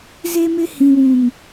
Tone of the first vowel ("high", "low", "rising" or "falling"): high